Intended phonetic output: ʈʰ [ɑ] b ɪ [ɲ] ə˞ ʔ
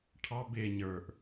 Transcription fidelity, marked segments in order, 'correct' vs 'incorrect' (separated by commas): correct, correct